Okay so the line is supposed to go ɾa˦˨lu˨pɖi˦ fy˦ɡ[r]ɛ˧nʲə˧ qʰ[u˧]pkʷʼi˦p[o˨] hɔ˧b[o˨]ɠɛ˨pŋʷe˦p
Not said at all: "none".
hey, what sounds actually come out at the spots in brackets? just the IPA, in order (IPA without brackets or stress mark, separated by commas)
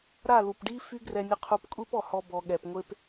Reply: r, u˧, ɔ˨, ɔ˨